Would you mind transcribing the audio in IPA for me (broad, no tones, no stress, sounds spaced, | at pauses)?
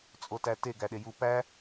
t͡sʼ o t æ t e ɡ æ ɗ e j u p æ